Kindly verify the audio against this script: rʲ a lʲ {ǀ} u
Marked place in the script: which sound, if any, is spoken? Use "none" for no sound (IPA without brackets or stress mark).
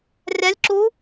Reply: ǁ